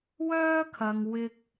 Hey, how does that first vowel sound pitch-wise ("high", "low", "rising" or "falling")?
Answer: high